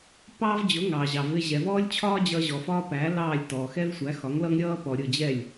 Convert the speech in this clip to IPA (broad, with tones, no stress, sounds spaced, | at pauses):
p ɑː˥ v d͡ʑ ʊ˩˥ ŋ ɑː˩ ʑ ɑ˩ v ɪ˧ ʑ ɛ˩ v ɔː˥ lʲ t͡ɕʰ ɒː˥ d͡ʑ ʌː˧ ʑ ɔ˩ f ɒː˥ p æː˩˥ l ɑː˥˩ lʲ t ɔː˩ x ɛ˥ v sʷ æ˩˥ x ɒ˩˥ ŋ l ʌ˥ ŋ ɾʲ ʌː˥ p ɔ˩ ɾʲ ʊ˥˩ d͡ʑ ɛ˥˩ lʲ